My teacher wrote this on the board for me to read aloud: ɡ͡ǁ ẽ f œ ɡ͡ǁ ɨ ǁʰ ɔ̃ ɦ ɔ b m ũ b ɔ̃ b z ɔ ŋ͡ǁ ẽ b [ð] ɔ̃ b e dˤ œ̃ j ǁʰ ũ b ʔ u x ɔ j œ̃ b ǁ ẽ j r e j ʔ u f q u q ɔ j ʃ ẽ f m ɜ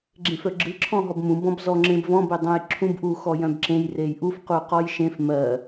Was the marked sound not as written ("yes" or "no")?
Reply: yes